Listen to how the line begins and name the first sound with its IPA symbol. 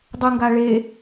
dˤ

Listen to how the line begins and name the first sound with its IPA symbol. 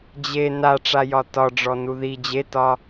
d͡ʑ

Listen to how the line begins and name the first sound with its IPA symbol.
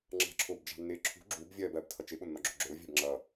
ŋ͡ǁ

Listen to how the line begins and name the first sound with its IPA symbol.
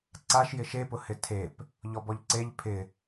ǀ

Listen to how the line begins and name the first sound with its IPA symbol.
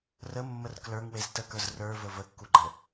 r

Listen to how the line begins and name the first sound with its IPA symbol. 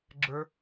ɡ͡ǁ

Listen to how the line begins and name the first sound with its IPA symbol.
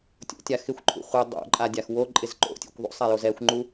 tʲ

